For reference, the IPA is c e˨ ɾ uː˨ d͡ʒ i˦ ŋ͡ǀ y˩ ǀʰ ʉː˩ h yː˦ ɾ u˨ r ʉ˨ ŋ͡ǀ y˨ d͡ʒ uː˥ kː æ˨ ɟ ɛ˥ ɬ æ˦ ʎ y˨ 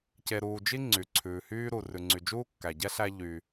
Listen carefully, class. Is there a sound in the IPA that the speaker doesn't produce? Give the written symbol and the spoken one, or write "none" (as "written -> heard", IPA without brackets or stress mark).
none